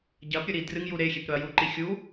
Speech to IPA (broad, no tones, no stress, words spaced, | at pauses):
ɟɐpɾʲɵɾi drɨŋju ɾexʲepɾɵɐ̯ juǃi xʲu